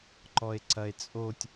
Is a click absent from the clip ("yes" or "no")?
no